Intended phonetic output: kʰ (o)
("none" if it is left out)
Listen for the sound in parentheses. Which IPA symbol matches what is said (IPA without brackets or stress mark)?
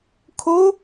o